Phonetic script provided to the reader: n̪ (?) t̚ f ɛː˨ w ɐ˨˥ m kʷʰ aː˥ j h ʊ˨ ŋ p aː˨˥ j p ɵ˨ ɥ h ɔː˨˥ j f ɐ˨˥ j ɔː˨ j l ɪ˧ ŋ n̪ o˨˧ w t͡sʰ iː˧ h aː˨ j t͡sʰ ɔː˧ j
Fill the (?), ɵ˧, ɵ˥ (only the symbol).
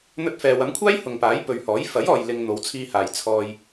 ɵ˧